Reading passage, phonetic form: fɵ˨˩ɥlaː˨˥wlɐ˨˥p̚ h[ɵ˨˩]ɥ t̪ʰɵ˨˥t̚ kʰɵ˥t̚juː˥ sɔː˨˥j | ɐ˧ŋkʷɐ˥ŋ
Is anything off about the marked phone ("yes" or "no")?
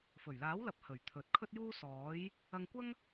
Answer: no